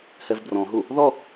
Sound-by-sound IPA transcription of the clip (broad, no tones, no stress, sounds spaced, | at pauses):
h ɛ v b r ɔ̃ ɦ u | ð ɔ